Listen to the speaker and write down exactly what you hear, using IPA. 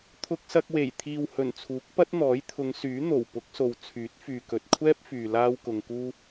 t̪ʰ ʊ˧ k̚ s ɐ˧ k̚ w e˨˩ j t̪ʰ iː˨ w h ɵ˨˩ n t͡sʰ uː˨˥ k̚ p ɐ˥ t̚ n̪ ɔː˨˥ j t̪ʰ ʊ˨˧ ŋ s yː˨˥ n̪ o˨˩ w p ʊ˨˥ k̚ s o˨ w t͡sʰ yː˨˥ t̚ f yː˨ k ɵ˨ t̚ kʷʰ ɛː˥ p̚ f yː˨ l aː˥ w k ʊ˧ ŋ k uː˥

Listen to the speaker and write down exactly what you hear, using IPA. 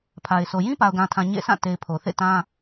pʰ a˨ ɪ̯ s o˨ j ĩ˦ p a˨ ʊ̯ ɡ ã˨ tʰ ã˨ ɲ ḛ˦˨ sʰ ã˦˨ t e˨ ɪ̯ pʰ o˨ θ ḛ˦˨ t ã˦

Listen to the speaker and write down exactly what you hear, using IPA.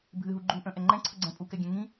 bʱ ɨ ɦ u ɡ͡ǃ u ʔ ə̃ ʔ ɛ ŋ͡ǃ ɛ̃ ǀʰ ə ɡ͡ǀ ɛ̃ pʼ u k ɛ ɡʲ ɛ̃ ŋ ĩ

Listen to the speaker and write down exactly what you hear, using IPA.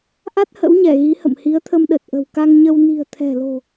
ʔ a˦˥ t̚ h ə̰˧˥ w ɲ ɛ˧˩ ɣ i˨˦ h ə̰˧˨ m h i˨˦ ə̯ t̪ʰ ə˧ m ɗ ə˨˩ t̚ ʔ ə̤˨˩ w k a˧ ŋ ɲ ə˧ w n i̤˨˩ ə̯ t̪ʰ ɛ̤˨˩ l o̤˨˩

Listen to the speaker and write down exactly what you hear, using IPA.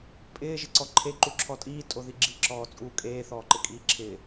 pʼ ɪː ʒ ɪ ǀ ɔ ǃʰ e ǃ u ǁʰ ɔ tʼ iː tʼ o ð i ɡ͡ǁ i ǁ ɔː t͡sʼ uː kʼ eː θ ɔː ǃ ɪ kʼ iː ǁʰ ɪː

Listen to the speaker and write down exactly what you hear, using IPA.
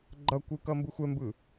ɡ͡ǃ ʌ kʷ ɯ k ʌ m b ɯ xʷ ɛ m b ɯ

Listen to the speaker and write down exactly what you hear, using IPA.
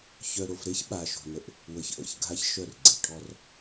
ç œ˨ ɾ o˨ f ɾ e˦ ç ɓ aː˨ ʃ o̤˨ n ə˨ ʔ | w ə˨ ç ʔ ə̰˦˨ ç ɡʱ a˦ ç ʃ œ˦˨ r ɡ͡ǀ e˨ ʈʰ ɔ˦ r

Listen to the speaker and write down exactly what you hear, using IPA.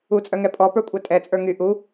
u t͡sʼ œ ŋ ɛ pʼ ɔ p ə˞ kʷʼ ɛ tʼ ɛ t͡sʼ ə˞ ŋ y ʔ u

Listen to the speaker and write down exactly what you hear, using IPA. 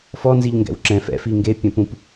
f ɔ n z i ʎ ŋ ɡ ɛ̰ w ǁ ɛ̃ f ɛ̰ f i ŋ ɡ e pʲ ɛ̃ p ũ p

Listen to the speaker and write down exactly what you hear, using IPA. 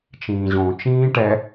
t͡ʃ ĩː ʑ õ t͡ʃ ĩː ʈ ɛ

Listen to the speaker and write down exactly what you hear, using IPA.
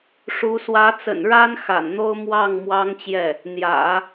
ʂ u˧˥ s w ä˧˥ t͡s ə̰˨˩ n ɻ a˥ n x a̰˨˩ n n̪ o˥ ʊ̯ m w ɑ˥˩ ŋ m w ɑ˥ ŋ t͡ɕ j ɛ˥˩ | n̪ j ä̰˨˩˦

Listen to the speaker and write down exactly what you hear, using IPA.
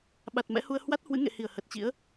ɓ a˨˩ t̚ m ɛ̰˧˥ h u˧ ə̯ h w a˦˥ t̚ h w ɨ̰˧˥ ŋ ḛ˧˨ h i˧˩ ə̯ h ə˨˩ t̚ t͡ɕ ḭ˧˥ ə̯

